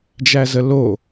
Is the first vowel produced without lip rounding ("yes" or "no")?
yes